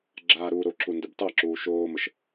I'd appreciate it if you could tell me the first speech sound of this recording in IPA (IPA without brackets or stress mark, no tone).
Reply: ɡ͡ǁ